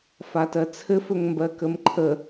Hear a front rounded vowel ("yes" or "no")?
no